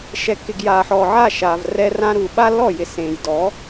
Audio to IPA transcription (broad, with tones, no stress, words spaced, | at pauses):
ʃɛ˨kːɪ˨ɡjaː˨ħɔː˨ ʕa˦˨ʃaː˨v rɛ˧rã˧ɾuː˨ ɓa˦lɔ˦˨ jɪ˧sẽː˨j dɔː˨˦